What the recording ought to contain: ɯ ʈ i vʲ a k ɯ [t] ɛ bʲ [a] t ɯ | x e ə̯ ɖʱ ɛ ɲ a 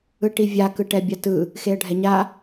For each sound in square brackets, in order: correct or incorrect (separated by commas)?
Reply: incorrect, correct